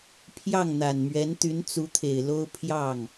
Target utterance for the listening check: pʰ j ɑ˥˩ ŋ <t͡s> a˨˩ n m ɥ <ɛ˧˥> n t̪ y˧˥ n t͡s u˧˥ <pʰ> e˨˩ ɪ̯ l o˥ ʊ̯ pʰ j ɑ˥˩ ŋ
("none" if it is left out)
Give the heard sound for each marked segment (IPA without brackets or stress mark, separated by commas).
n̪, ɛ˧˥, t̪ʰ